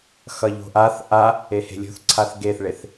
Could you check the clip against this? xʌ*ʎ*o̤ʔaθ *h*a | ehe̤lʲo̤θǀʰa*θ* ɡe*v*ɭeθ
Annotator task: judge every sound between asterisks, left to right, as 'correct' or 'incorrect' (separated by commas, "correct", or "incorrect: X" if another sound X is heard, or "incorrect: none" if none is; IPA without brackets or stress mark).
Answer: correct, incorrect: ʔ, correct, incorrect: θ